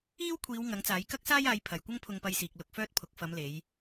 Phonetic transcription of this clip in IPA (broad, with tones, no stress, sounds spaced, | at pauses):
iː˥ w kʷʰ iː˨˧ w ŋ ɐ˨˥ ŋ t͡s aː˨˥ j k ɐ˥ k̚ s aː˥ j aː˨˧ j pʰ ɐ˨ j kʷ ɐ˥ ŋ pʰ ʊ˧ ŋ p ɐ˧ j s iː˨ k̚ l ʊ˧ k̚ f œː˥ t̚ pʰ ʊ˨˥ k̚ f ɐ˨˧ m l e˨˧ j